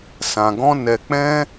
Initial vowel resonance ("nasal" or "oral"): nasal